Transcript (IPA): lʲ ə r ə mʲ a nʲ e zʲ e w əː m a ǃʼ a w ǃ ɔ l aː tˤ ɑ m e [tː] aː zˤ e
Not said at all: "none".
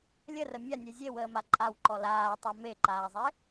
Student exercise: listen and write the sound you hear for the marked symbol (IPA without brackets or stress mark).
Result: ǃ